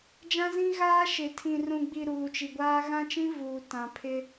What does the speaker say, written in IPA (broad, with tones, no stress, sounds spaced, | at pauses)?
d͡ʒ ã˦ z ĩ˦ ɣ aː˦ ʃ ɪ˨ tʰ ĩ˨ r ũ˨ ɡ͡b i˨ ɾ uː˨ t͡ʃ i˨ ɡʷ aː˦ ɣ ã˦ t͡ʃ ĩ˦ v uː˨ t ã˨ pʰ ɪ˦